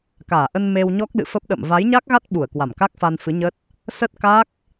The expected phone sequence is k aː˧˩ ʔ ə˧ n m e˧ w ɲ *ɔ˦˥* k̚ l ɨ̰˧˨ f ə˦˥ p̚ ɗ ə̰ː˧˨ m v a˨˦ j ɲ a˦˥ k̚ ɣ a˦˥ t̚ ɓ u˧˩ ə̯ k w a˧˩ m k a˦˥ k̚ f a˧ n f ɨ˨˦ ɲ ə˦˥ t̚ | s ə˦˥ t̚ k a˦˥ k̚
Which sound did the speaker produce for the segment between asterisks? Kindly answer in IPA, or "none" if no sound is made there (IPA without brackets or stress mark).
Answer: ɔ˦˥